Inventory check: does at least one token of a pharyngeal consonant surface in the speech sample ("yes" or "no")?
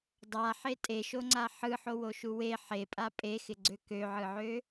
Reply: yes